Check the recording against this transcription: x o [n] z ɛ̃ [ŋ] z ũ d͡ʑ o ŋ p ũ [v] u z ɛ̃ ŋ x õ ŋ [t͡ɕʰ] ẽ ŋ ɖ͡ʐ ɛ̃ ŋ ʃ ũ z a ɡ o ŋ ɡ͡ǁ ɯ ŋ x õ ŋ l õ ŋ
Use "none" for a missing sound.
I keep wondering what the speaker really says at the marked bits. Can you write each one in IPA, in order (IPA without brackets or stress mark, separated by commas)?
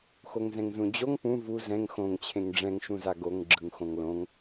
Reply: ŋ, ŋ, v, t͡ɕʰ